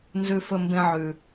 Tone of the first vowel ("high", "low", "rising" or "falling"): low